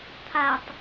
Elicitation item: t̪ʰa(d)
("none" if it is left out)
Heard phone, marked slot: tˤ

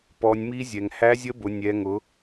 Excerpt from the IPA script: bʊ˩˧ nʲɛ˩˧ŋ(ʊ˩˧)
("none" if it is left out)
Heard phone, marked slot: ʊ˩˧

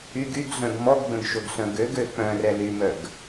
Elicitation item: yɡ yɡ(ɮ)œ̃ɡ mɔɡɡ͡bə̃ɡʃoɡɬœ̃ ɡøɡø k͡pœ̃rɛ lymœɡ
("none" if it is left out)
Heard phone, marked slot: ɮ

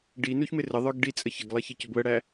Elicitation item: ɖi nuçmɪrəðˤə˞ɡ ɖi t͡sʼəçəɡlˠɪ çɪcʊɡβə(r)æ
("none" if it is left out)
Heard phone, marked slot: ɽ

